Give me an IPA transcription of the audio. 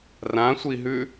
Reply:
r ã sʷ i ɦ ʉ

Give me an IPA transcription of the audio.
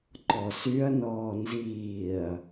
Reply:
ǃ ɔ s y ɐ̯ n ɔː n z iː ɐ̯

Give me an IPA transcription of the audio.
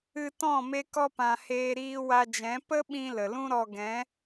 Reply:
ɨ˧ t ɔ̃˦˨ m e˧ k ɔ˧ p ã˨ h eː˧ ɾ iː˧ w a˧ d͡ʒ ɛ̃˨˦ p ə˦ ɓ ĩ˧ l ə˨ l ũ˦ ɾ ɔ˧ ɡ ɛ̃˨˦

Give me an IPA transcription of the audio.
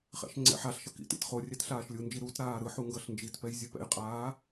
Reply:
χ ɛ̰ ʃ ŋ͡ǀ ɛ̰ ħ a ɬ ʃ ʌ k ḭ t ḭ t χ o rʲ ɛ t ɬ aː ʃ lʲ u n d͡ʒ i ɾ u t ɾ aː ɾ ɯ ħ u ŋ ɡ ʌ ɬ n d͡ʒ i t p ɛ j zʲ ɯ p ɛ̰ j qʼ aː

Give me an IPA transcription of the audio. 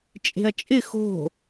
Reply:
t͡ʃʼ e̤ ɐ̯ t͡ʃʼ ɪ x o̤

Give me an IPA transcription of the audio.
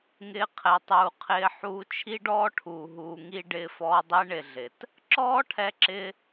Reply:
ŋ ɪː˧ qʰ ɛ˨ tˤ uː˨ qʰ ɪː˧ ħ uː˧ t͡ʃʰ i˦ ɖ ɔː˦ ʈʰ uː˨ ɦ uː˨ ŋ i˧ ɖ ɪː˧ f ɔː˧ dˤ e˦ ɳ ɪ˧ ɮ ɪ˨ t | ǁ ɔː˦ ʈʰ ɛ˧ ǁ ɪ˧

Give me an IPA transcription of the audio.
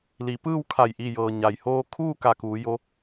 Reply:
l i˩˧ p ɯː˥˨ w kʰ a˧˩ j ʔ i˧˩ j ɤː˩ ɲ a˩ j h oː˧ kʰ uː˥˨ k a˧˩ k uː˩˧ j o˧˥

